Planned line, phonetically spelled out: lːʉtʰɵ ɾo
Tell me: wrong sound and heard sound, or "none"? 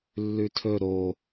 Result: none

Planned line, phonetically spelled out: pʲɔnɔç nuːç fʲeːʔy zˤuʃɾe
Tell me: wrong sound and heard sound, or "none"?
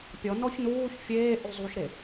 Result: none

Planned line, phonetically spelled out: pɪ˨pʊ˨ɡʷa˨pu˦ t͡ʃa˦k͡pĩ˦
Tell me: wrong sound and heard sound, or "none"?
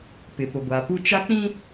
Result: none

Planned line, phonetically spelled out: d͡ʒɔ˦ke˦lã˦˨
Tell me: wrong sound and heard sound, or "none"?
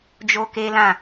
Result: ɔ˦ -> o˦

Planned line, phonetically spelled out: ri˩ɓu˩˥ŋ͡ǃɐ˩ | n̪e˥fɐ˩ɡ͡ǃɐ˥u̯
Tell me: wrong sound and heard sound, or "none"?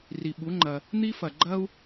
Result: e˥ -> i˥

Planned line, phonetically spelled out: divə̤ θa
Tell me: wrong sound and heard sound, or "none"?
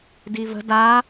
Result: θ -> d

